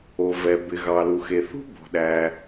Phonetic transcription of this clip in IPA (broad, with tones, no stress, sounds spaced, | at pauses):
o˩ v ɛ˩ b ɪ˩ ɣ ɑ˩ l u˩ x e˩ θ ṳ˥ b o̤˩ ɗ æ˩